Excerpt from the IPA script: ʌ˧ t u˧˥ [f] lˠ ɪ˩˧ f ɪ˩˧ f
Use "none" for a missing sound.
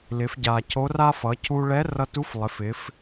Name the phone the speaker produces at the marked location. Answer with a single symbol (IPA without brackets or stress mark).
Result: f